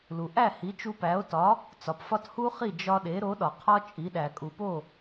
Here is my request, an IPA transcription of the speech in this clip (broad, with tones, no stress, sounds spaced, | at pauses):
l u˩ ʔ æ˥˩ h i˩˥ t͡ʃ u˧ p æ˩˥ o̯ t ɒ˩˥ | t͡s ɒ˩ p f ɒ˥˩ t h u˥ χ i˥˩ d͡ʒ ɒ˧ ɗ e˩˥ ɾ o˩˥ ɗ ɒ˩ qʰ ɒ˥ t͡ʃʼ i˩˥ ɗ æ˩ kʼ u˩ p o˥˩